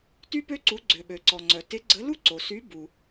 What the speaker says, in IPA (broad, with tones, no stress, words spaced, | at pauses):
ty˥pø˥ǀu˨˥ ɡ͡ǀø˩ɓø˩ǀɔ˩ŋ͡ǀœ˩ tɪ˨˥ɡ͡ǀə˨˥ lu˥ǀo˩sy˨˥ bu˩